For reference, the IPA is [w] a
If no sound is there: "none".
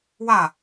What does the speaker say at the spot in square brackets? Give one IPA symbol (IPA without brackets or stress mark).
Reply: w